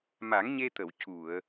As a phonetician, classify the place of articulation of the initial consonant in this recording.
labial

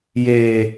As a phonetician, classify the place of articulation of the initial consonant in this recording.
palatal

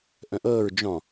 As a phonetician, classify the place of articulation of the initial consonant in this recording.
glottal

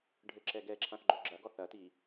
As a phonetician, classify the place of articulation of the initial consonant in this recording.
retroflex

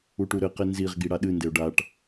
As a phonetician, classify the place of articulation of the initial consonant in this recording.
retroflex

